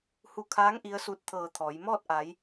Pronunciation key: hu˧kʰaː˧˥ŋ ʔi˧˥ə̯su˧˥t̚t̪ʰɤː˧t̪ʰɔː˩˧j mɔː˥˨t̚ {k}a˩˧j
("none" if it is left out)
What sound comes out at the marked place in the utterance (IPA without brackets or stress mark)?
ʔ